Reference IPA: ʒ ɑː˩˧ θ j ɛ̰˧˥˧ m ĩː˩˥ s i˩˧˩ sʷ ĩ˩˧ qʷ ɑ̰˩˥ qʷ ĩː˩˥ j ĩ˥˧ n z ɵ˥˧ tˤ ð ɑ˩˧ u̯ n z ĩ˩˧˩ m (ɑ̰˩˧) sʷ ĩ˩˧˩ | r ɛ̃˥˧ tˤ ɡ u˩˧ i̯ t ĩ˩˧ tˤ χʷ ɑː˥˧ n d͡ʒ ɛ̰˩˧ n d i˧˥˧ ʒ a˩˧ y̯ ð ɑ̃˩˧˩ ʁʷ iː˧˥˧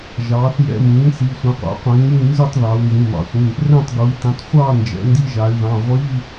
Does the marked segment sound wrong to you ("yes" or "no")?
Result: no